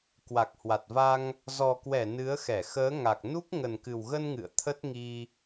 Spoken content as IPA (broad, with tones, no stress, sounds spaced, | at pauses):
k w a˨˩ k̚ h w a˨˩ t̚ v a˧ ŋ | z ɔ˨˩ k w ɛ˧˩ n ɨ˨˦ ə̯ x ɛ˧˩ x əː˨˦ ŋ a˨˩ k̚ n u˦˥ k̚ ŋ ə˨˩ n k ɨ˨˩ w ɣ ə˧ n ŋ ɨ̰˧˨ ə̯ t̪ʰ ə˦˥ t̚ ŋ i˧